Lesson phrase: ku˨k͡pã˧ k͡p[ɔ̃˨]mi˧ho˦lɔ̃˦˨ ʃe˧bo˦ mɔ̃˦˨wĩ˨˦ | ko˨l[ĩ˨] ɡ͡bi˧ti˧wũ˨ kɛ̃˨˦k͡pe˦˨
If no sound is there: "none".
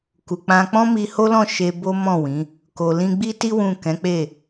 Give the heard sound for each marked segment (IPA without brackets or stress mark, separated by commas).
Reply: ɔ̃˦, ĩ˧